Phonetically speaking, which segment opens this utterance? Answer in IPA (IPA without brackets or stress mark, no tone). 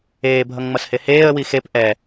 eː